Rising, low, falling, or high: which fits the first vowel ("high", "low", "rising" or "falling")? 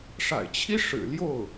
low